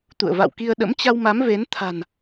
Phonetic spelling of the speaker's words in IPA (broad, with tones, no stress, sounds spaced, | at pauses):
t̪ ṵ˧˨ ə̯ v a̰˧˨ w k i˧ ə̯ ɗ ə̰˧˥ m t͡ɕ a˧ w m a˨˦ m v e˨˦ n t̪ʰ a̤˨˩ n